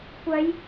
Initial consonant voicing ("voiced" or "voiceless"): voiceless